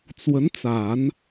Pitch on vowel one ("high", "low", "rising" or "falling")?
rising